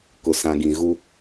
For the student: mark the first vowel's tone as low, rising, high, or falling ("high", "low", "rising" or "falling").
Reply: low